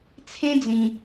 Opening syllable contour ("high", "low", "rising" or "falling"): high